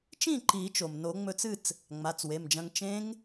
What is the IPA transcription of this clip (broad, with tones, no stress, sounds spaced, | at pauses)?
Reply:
t͡ʃ ĩ˥˨ ǃ i˨˩˦ t͡ʃ o˩ m n o˨˩˦ ŋ͡m ɵ˧ t͡s ɨ˥˨ t͡s | ŋ͡m a˩˧˩ t͡s w e˩˧˩ m d͡ʒ ɐ̃˧ ŋ t͡ʃ ẽ˦˥ ŋ